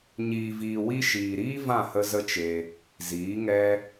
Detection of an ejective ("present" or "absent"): absent